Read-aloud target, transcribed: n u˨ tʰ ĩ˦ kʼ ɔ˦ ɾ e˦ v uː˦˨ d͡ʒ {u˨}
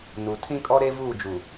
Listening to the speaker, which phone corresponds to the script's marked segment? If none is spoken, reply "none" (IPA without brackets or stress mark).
u˨